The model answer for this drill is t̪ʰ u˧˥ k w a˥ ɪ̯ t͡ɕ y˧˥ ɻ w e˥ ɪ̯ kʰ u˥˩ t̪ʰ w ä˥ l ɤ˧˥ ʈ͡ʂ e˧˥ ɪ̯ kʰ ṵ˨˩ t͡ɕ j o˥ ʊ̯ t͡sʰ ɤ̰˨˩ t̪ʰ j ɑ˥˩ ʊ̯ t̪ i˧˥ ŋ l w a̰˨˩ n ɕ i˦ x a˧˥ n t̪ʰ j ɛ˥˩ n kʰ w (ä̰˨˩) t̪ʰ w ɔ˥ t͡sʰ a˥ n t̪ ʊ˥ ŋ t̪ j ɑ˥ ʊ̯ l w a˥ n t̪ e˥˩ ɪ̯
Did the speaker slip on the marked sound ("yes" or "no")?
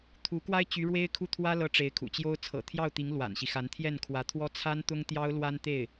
yes